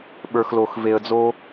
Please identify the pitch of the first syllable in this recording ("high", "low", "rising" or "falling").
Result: low